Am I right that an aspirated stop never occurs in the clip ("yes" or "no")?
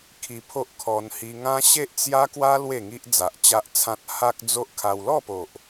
no